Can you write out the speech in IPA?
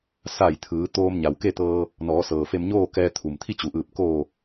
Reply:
s a˧˩ j t̪ʰ ɯː˩˧ t̪ oː˧ m ɲ a˩ w k e˥˨ t̪ ɤː˧ | n ɔː˩˧ s ɤː˩ f e˧ m ɲ oː˥˨ k ɛː˧ t̪ʰ u˩ m t̪ʰ i˥˨ t͡ɕ u˩ ʔ ɯː˧˩ p̚ k oː˧˩

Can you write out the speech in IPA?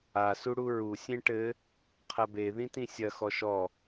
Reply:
a s u ɽ u ɹ u sʲ ẽ ʈ ɘ | qʰ ɐ b e ð ĩ t ĩ sʲ ɐ x ɔ ʃ ɔ

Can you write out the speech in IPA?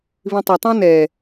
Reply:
β ĩ tˤ ʌ tˤ ɛ̃ n ɛ

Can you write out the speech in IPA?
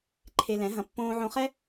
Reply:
ǃʰ e˧ l ɛ̃˨˦ ɦ ɐ̃˧ pː õː˧ ʕ õ˧ χ ɛ˦

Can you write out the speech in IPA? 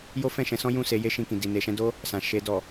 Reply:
j o˦ f ɛ̃˦˨ ʃ ɛ̃˨˦ s ɔ̃˦ j ũ˦˨ s e˨˦ j e˦ ʃ ĩ˧ k ĩ˨ d i˨ n e˨ ʃ ɛ̃˧ d o˦ | s ã˨ ʃ e˧ d ɔ˨

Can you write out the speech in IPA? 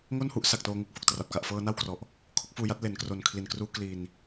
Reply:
ŋ o˥˩ n h u˦˥ ʔ s a˨˩ k̚ t oː˧ ŋ u˦˥ k̚ f o˨˩ k̚ t r a˨˩ p̚ k a˨˩ ʔ f ɤː˧ n a˥˩ w k r ɔ˨˩ ʔ | kʰ o˦˥ k̚ f uː˧ j a˦˥ t̚ l e˩˦ n k r o˨˩ n kʰ l i˨˩ n k r uː˦˥ k l i˧ n

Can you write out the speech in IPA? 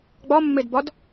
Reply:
ɡ͡b ɒ mː e d b ɒ d

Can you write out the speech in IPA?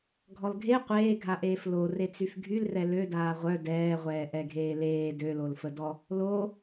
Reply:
ɡʱ ɔ l ɡʱ e qʷ eː ɡʱ a ʔ eː f l o r e t͡s y f ɡʱ y l r ɛ l ø d aː ʁʷ œ d ɛː ʁʷ ɛː ʔ ɛ ɡʱ eː l eː d ø l o l f ə d ɔ | l o

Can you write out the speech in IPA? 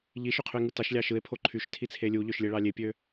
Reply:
ʎ i ʃ y qʰ y e̯ ŋ ɯ t ɑ ʃ lʲ ɑ ʃ ɯ e̯ pʰ o ǃʰ y ʃ tʰ i t͡sʰ e lʲ u ʎ ø ʃ lʲ e ɭ ɑ lʲ e pʲ ø

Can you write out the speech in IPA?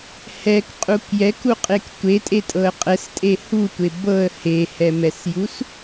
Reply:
h ɛ k qʼ u k j ɛ k u qʼ e k tʷ e tʼ e tʼ ɤ ə̯ qʼ ɛ s tʼ e h u tʷ e b ɤ ə̯ h e h ɛ m ɛ s j u s

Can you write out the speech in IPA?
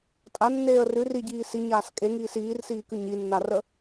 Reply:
tʼ a nː eː ə̯ r ʉ r i ɟ iː s i ɲ aː s kʼ e ŋ iː s iː r s iː k ʉ ɲ i nː a r ə

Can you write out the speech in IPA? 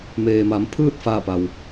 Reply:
m eː˩ m a˩˧ m pʰ ɯː˥˨ t̚ f aː˥˨ p a˩ w

